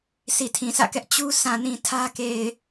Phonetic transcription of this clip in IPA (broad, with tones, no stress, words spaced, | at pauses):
si˨tʰĩ˨sä̰˦˨kɛ˦ʔ t͡ɕu˦ sã˨nĩ˨ tʰä˦ ke˨ɪ̯